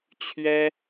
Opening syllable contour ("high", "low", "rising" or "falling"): high